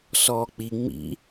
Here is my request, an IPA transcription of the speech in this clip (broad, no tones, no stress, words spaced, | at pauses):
sɔːk͡pi ŋ͡mḭ